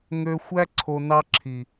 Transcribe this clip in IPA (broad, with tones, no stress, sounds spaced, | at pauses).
ŋ ø˧ xʷ æ˦ ǀʰ o˧ n ɑ˦ ǁʰ i˨